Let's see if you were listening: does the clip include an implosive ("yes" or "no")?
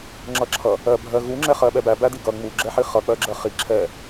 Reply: yes